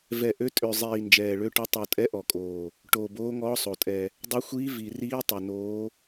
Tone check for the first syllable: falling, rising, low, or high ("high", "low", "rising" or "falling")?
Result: low